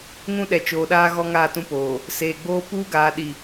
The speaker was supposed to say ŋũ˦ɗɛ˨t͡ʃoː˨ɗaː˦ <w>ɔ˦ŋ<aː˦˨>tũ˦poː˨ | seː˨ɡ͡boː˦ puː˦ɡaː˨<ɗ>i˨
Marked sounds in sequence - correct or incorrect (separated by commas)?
incorrect, correct, correct